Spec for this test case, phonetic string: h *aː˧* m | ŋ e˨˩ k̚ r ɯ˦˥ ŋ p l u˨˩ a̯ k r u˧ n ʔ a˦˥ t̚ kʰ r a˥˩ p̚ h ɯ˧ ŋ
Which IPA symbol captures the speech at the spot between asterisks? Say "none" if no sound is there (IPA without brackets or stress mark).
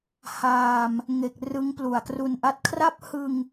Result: aː˧